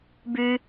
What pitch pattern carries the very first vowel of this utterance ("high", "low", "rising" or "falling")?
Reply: high